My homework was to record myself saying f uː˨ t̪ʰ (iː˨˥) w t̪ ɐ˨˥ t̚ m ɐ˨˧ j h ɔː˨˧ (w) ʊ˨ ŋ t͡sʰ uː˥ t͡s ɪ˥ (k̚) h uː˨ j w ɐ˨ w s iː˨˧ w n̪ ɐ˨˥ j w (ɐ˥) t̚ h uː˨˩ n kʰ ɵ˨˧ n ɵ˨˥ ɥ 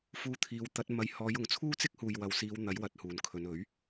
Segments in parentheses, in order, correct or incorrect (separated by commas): incorrect, incorrect, correct, incorrect